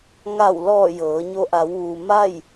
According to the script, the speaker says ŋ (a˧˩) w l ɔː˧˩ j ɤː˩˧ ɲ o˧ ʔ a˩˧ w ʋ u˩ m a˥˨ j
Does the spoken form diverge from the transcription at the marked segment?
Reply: no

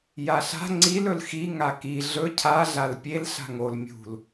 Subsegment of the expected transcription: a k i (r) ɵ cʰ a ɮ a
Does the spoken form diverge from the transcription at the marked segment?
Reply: yes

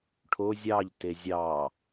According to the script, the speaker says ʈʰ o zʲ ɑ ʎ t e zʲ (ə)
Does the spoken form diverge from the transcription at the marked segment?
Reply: yes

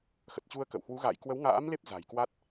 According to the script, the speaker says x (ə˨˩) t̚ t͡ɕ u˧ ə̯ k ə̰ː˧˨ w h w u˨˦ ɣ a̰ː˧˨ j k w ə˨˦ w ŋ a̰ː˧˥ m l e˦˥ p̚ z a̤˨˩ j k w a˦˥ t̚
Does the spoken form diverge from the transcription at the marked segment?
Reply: no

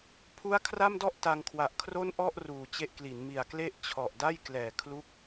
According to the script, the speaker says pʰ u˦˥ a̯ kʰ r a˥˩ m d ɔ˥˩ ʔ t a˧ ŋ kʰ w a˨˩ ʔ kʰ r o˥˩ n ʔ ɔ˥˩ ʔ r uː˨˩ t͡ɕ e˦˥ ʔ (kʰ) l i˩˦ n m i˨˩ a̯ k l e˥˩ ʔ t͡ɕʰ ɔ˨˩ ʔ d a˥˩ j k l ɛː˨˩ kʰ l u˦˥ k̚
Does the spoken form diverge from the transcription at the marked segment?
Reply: yes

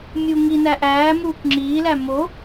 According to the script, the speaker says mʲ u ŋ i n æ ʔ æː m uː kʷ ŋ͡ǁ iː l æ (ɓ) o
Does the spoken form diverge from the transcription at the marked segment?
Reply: yes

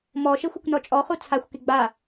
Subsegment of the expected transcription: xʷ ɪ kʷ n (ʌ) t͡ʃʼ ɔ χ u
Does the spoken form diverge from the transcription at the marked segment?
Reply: yes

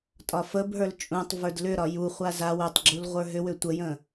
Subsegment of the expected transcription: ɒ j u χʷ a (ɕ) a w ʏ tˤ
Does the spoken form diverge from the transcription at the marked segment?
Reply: yes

